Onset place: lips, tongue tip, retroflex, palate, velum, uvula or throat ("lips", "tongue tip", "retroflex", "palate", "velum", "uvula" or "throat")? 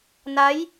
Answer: tongue tip